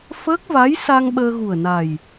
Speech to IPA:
fəː˦˥k̚va˧˥jsa˧ŋ ɓəː˧ɣu˨˩ə̯na˨˩j

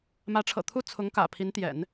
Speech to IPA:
mä˧˥ʈ͡ʂʰɤ̰˨˩t̪ʰu˥˩ t͡sʰʊ˧˥ŋkä̰˨˩ pʰi˧˥n t̪jɛ̰˨˩˦n

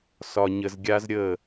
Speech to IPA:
sɒ˨ɲə˨zɡʲa˦z ɾʲə˦˨

